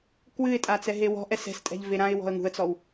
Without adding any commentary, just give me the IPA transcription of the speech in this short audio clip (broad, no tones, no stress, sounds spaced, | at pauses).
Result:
k w ɨ ɪ̯ tʼ a t͡s ɛ ɦ e w ɔ̤ ʔ ɛ s ɛ̤ s tʼ ɛ̤ ʎ v e ɾ ã ɪ̯ w ɔ̤ ə̯ ŋ ṳ ə̯ t͡s ɔ w